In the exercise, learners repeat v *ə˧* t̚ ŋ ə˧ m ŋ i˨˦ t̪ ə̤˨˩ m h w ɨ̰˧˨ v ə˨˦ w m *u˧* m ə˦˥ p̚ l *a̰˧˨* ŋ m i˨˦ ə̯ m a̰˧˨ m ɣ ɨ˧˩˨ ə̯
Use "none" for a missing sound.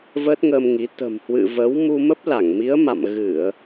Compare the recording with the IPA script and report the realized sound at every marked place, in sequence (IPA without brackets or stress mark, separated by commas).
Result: ə˦˥, u˧, a˧˩